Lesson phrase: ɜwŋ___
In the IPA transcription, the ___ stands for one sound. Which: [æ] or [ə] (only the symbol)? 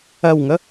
ə